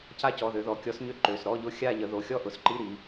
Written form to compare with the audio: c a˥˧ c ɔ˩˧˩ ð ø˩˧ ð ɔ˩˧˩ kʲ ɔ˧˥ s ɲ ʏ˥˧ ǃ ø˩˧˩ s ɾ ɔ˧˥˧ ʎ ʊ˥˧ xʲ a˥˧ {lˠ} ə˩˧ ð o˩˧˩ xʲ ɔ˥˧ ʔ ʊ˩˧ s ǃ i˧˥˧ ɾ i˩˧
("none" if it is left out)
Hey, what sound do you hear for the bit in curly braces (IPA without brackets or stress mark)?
ʎ